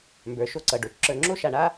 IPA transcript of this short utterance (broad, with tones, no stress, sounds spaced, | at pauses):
m b ə˞˩ ʃ o˧ ǀ ʌ˩ ɖ o˩ t͡ʃ ǁ ə˞˧ ŋ͡ǁ o˥ ʃ a˧ ɳ a˥